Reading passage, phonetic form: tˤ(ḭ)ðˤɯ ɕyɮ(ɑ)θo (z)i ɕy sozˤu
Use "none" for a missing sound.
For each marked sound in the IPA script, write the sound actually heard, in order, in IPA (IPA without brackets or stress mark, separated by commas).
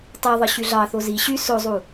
i, ɑ, z